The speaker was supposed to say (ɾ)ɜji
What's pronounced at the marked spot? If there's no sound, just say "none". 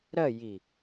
ɾ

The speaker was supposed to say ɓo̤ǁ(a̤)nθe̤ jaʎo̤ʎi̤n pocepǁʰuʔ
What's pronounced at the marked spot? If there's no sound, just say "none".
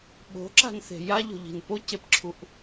a̤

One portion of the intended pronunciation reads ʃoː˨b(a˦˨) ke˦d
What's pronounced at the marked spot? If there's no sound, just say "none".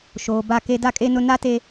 a˦˨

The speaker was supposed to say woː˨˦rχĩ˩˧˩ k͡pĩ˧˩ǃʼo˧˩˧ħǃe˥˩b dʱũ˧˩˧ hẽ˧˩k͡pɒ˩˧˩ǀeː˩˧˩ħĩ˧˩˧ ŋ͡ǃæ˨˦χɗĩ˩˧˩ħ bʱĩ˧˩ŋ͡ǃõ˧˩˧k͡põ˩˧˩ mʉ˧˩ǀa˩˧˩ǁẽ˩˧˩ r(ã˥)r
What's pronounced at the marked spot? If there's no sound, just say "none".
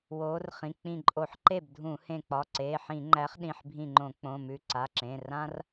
ã˥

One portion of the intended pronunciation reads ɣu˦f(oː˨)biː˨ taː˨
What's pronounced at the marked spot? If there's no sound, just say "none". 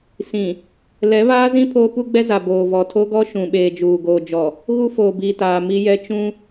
oː˨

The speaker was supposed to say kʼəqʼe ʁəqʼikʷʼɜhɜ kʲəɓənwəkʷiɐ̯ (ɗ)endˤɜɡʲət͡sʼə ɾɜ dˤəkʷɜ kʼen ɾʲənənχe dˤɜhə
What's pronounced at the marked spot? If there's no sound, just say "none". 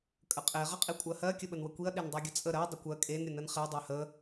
ɗ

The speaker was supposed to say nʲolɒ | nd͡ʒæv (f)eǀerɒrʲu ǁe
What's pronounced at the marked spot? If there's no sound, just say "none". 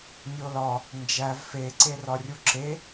f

